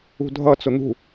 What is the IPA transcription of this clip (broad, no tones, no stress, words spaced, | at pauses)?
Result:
ṳdʱʌ t͡sʊn̪ṳ